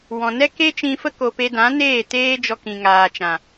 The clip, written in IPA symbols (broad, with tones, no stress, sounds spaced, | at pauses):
w ɔ̃˨ n ɛ˦ k e˦ t͡ʃ ĩ˧ f ə˦ k o˨ p e˧ d ã˨˦ n eː˦˨ t eː˦ d͡ʒ ɔ˧ k ĩ˨ ŋ aː˨ t͡ʃ ã˨